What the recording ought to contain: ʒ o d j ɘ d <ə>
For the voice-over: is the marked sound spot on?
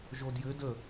yes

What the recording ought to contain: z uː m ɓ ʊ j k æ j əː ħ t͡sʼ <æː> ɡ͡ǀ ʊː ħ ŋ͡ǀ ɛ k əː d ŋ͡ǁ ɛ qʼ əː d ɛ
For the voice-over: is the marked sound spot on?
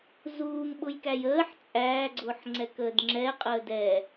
yes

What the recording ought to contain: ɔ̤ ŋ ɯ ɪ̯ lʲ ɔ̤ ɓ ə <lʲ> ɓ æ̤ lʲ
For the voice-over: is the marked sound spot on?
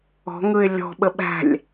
no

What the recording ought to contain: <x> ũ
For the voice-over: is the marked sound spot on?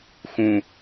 yes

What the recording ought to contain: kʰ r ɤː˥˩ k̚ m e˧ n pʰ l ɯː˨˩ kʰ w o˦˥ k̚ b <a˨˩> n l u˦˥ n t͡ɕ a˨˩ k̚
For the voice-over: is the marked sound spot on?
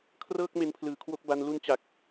no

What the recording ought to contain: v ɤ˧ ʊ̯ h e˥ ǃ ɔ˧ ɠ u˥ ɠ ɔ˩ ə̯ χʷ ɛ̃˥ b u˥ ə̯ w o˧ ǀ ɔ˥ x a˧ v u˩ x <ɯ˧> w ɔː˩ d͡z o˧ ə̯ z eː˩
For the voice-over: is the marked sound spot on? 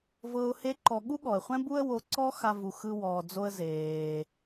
yes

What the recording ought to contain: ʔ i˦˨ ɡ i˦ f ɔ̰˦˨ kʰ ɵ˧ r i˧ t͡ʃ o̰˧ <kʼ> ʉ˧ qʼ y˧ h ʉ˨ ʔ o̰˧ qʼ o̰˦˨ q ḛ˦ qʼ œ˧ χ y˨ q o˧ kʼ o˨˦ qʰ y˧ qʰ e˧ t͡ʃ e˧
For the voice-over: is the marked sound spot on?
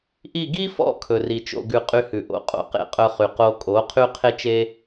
no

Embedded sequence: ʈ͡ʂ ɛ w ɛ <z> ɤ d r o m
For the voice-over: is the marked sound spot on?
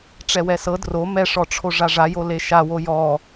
no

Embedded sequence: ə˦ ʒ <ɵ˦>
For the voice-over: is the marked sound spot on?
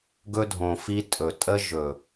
no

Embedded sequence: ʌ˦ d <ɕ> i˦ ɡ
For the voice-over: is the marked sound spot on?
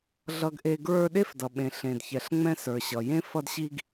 yes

